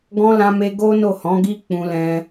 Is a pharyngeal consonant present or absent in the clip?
absent